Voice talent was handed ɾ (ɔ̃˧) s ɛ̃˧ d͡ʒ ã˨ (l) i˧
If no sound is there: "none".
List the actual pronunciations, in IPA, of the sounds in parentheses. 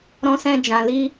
ɔ̃˧, l

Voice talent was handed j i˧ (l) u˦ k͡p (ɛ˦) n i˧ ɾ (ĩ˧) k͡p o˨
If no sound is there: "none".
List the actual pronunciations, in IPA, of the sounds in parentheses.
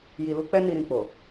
l, ɛ˦, ĩ˧

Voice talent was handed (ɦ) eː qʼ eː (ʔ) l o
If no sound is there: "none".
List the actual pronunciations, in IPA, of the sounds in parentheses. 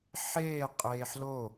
ħ, ħ

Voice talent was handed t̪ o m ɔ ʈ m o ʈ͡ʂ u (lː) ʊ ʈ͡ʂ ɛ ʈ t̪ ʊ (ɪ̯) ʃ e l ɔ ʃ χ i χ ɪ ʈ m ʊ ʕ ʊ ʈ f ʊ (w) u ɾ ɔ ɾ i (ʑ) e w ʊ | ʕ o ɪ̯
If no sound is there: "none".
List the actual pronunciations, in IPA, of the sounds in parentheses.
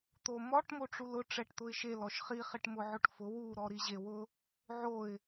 l, ɪ̯, w, ʑ

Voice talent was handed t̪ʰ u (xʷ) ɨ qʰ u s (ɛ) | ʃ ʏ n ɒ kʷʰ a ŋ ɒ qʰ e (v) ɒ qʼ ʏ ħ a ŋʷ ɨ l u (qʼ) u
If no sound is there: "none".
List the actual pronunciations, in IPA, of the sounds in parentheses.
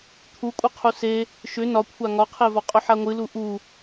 kʷʼ, e, v, ʔ

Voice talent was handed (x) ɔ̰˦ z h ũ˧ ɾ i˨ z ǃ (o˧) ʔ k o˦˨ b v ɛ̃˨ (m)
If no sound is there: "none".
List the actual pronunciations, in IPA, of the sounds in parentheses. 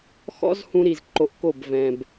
x, o˧, b

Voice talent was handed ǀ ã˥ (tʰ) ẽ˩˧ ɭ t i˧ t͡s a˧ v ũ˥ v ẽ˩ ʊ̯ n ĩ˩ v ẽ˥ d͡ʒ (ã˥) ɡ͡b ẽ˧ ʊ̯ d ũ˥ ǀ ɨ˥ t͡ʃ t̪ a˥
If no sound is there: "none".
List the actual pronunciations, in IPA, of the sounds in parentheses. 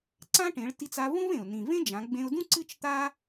ʈ, ã˩˧

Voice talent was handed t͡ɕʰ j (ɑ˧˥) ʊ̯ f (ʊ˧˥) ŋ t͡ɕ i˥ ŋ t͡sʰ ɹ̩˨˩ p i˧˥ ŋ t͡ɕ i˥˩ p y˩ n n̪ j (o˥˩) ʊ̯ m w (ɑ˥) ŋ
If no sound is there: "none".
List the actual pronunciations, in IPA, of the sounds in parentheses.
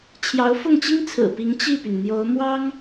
ɑ˧˥, ʊ˥˩, o˧˥, ɑ˥

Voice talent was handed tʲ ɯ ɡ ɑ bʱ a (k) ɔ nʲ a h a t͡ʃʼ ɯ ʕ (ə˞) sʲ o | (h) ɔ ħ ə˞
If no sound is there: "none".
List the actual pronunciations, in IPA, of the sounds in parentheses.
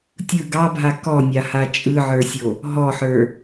k, ə˞, ɦ

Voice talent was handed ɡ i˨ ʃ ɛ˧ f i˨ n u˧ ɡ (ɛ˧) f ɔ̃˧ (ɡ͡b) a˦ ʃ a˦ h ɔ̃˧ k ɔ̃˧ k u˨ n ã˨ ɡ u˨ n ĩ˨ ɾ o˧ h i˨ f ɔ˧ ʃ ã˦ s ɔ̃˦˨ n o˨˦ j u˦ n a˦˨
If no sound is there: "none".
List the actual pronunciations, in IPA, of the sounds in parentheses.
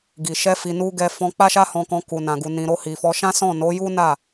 ɛ˧, k͡p

